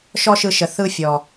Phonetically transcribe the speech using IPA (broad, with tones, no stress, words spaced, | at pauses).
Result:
ʃɔ˦ʃɯ˧ ʃə˨ θɯ˦fʲɔ˨